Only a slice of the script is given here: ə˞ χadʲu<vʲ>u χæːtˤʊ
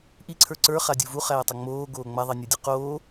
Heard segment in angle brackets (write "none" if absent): v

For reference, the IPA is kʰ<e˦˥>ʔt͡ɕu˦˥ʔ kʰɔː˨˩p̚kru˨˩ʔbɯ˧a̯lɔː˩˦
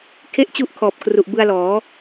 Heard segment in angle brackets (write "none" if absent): e˥˩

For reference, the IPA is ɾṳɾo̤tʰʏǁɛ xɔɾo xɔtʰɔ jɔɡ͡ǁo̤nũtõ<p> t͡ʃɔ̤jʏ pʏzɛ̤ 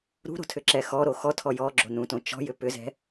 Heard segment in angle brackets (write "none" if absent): none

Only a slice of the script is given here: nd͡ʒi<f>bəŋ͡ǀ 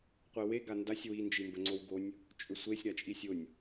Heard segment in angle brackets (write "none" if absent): m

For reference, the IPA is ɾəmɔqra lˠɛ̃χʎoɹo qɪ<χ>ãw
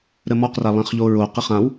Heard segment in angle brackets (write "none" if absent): χ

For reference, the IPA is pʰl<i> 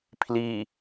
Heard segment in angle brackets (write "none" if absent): i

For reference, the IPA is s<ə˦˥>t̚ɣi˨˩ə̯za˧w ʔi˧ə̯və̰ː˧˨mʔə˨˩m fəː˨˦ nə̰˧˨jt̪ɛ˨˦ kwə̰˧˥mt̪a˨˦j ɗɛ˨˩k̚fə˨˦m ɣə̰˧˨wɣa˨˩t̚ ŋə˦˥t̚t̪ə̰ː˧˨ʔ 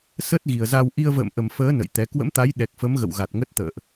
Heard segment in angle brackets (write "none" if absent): ə˦˥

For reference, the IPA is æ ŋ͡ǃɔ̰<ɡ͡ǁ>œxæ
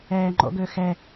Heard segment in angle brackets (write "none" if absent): ɡ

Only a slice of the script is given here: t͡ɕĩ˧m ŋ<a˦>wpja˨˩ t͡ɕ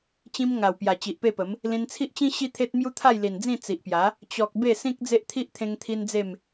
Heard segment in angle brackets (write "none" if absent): a˨˩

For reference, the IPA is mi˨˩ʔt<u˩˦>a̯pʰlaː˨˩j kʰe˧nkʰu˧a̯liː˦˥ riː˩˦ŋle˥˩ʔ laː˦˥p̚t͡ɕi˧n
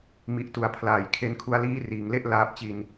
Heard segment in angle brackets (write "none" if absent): u˩˦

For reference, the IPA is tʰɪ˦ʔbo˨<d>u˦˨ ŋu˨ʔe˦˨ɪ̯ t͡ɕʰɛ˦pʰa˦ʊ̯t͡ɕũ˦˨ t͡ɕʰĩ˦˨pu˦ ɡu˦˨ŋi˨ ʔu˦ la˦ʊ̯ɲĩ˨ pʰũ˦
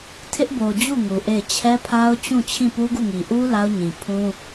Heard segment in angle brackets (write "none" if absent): d͡ʑ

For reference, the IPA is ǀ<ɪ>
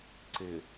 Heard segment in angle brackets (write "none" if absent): ɪ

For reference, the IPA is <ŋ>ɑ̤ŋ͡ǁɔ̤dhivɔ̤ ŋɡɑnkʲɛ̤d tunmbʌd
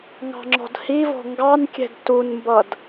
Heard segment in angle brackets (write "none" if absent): ŋ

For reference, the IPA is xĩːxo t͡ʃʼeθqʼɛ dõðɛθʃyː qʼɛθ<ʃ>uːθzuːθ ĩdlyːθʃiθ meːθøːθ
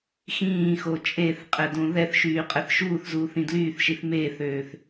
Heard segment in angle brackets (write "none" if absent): ʃ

